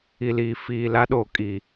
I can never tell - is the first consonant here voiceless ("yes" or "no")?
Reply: no